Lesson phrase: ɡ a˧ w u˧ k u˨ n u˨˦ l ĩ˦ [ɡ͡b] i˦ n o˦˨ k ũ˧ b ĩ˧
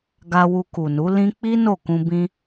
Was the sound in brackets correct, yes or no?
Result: no